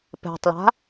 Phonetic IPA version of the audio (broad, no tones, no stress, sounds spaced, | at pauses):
p ɛ̤ tˤ l a̤